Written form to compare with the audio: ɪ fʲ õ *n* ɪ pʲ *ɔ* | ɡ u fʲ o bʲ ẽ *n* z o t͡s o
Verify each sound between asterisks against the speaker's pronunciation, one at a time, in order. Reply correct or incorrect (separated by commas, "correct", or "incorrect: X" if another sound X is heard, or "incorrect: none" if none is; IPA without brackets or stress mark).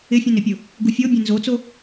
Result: correct, incorrect: ʊ, correct